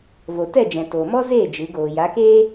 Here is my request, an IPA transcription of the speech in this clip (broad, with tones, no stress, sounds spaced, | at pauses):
v o˨ t ɛ˦˨ d͡ʒ ɛ̃˨ t oː˨ m ɔ˦ z eː˦˨ d͡ʒ ɨ˨˦ ɡ oː˨ j a˨˦ k eː˦